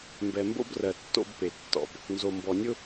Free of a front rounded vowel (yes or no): yes